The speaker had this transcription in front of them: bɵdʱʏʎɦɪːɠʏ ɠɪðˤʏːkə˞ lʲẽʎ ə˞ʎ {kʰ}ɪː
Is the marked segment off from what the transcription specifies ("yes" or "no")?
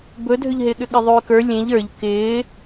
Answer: yes